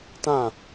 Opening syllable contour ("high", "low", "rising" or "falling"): falling